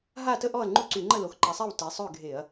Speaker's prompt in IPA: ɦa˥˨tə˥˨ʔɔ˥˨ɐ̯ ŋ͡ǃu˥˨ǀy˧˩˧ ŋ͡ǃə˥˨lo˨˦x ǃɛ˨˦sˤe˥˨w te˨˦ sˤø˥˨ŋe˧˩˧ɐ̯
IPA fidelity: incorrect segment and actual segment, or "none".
ŋ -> ɡʱ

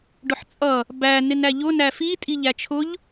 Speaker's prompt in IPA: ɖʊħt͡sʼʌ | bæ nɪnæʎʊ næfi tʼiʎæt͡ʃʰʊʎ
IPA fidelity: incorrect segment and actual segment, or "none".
none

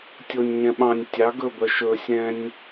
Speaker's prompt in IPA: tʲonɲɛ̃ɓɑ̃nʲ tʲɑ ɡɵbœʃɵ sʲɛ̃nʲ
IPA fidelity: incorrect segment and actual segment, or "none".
n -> nʲ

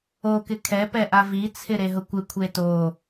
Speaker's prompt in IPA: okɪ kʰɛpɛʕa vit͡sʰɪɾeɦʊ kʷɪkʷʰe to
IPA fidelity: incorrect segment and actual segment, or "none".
ʕ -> ʔ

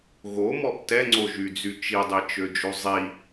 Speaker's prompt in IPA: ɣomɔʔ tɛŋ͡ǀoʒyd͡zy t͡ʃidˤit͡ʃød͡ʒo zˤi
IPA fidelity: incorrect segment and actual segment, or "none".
none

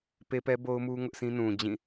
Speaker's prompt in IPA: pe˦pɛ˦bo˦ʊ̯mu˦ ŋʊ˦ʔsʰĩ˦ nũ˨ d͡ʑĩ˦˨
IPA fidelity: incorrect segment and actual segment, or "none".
none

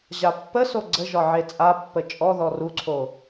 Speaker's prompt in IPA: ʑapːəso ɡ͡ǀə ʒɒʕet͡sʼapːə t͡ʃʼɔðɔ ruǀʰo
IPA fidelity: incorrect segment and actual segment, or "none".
none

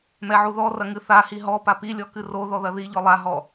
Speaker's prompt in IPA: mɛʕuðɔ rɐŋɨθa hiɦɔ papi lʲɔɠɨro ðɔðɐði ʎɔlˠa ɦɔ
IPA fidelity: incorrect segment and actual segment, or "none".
ɠ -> k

